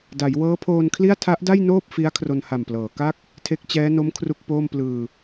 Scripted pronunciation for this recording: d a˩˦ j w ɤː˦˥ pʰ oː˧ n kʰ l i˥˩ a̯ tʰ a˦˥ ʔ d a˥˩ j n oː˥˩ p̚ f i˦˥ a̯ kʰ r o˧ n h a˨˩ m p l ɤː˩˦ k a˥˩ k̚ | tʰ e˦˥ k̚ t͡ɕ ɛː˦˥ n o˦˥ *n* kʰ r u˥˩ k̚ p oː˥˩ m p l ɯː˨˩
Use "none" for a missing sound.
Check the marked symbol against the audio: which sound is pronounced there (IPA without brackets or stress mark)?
m